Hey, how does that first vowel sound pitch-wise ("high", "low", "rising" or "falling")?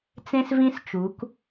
high